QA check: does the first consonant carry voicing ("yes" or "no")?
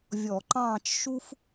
yes